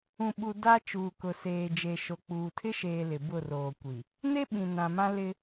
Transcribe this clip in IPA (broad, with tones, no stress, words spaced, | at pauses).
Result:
ũ˨ɓu˨ da˦ t͡ʃuː˨kʊ˨seː˨ d͡ʒe˨ʃo˨k͡puː˨ tʰɪ˦ʃeː˨ lɪ˨bʊ˦˨roː˨kʷi˨ | ne˦ ɓĩ˨ nã˨mã˦ lɪ˦